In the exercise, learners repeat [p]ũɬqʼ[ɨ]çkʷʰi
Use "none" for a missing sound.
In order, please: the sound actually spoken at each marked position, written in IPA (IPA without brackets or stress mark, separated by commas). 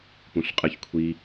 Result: p, ɨ